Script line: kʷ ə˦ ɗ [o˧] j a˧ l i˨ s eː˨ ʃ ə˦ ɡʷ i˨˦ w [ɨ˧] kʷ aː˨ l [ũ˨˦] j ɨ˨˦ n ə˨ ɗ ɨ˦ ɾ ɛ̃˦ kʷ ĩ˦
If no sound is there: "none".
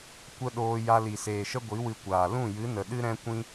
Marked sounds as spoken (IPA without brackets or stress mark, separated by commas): oː˧, ɨ˧, ũ˦˨